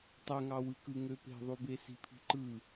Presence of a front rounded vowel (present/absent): present